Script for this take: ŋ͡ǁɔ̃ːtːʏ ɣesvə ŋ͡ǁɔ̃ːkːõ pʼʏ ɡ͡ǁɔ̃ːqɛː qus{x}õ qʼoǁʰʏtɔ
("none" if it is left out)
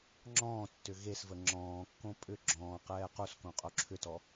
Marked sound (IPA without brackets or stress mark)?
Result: k